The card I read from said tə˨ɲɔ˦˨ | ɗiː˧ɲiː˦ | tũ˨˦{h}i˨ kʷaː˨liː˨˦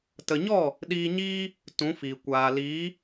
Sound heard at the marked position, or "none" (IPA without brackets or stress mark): f